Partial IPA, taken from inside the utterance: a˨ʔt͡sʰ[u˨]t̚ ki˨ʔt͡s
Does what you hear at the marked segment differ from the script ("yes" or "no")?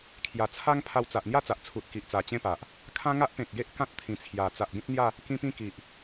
no